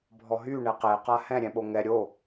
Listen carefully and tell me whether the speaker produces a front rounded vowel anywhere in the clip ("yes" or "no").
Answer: yes